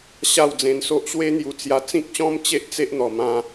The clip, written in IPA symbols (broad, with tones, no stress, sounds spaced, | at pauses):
ɕ a˥˧ w d͡z ẽ˧ n s o˦ ʔ ɕ w e˦ n̪ j u˧ t͡s j a˧ t͡s ĩ˦ k̚ ɕ ɔ̃˦ m t͡ɕ e˦ ʔ t͡s e˦ ʔ n̪ ɔ˨˩ m ã˧